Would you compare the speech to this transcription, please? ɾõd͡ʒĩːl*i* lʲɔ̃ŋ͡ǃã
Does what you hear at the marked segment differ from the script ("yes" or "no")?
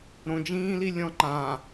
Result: no